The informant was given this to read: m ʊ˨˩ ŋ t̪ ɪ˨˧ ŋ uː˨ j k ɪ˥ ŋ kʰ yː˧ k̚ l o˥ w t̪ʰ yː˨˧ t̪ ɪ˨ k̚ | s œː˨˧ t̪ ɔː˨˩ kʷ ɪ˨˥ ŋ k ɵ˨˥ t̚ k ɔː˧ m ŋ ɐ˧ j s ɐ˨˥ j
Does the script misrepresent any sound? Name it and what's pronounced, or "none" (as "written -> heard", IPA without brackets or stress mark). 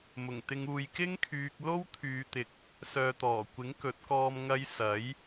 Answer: none